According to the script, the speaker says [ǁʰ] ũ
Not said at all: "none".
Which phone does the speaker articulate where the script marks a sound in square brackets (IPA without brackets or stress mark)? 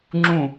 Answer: ŋ͡ǁ